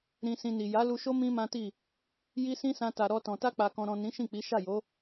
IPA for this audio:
ɾ ĩ˧ s ĩ˧ n i˨ j a˨˦ l u˧ ʃ o˦ m ĩ˦ m ã˦ t i˦˨ | j i˦ s ĩ˦ s ã˧ t a˨ ɾ ɔ˧ t ɔ̃˨ t a˧ k͡p a˨ k ɔ̃˨ ɾ ɔ̃˨ n ĩ˨˦ ʃ ĩ˦˨ k͡p i˨˦ ʃ a˦˨ j o˨˦

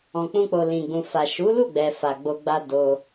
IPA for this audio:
ɔ̃˨ k͡p ũ˧ k͡p o˨ l ĩ˨ ɡ͡b ũ˨ f a˨ ʃ u˨˦ l u˦˨ ɡ͡b ɛ˨ f a˨ ɡ͡b o˧ ɡ͡b a˦ d o˧

